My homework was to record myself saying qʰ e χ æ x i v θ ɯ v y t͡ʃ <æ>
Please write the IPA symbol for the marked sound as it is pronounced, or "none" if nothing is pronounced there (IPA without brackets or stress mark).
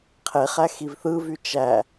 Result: æ